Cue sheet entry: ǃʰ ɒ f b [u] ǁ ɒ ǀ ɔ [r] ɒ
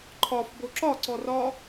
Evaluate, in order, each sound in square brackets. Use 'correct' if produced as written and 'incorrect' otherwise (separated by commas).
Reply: incorrect, correct